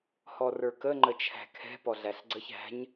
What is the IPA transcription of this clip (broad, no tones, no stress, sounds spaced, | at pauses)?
h ɔ r ə˞ k ə ŋ͡ǃ ə t͡ʃʰ æ̤ kʰ ɛ̤ p ɔ ɮ æ ɬ ɡ͡ǀ ə ç æ̤ ɲ